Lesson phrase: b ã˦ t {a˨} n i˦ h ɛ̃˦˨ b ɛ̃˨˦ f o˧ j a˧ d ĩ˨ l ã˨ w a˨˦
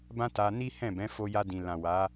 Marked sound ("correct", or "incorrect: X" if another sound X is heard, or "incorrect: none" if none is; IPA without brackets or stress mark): incorrect: a˧